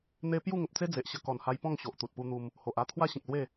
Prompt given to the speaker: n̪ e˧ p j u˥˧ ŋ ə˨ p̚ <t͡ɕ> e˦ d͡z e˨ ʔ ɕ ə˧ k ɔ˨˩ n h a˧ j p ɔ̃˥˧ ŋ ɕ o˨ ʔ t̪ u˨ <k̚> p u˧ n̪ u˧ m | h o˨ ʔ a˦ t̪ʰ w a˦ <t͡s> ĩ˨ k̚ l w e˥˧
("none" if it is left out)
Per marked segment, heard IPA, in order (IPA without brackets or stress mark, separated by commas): t͡s, t̚, ɕ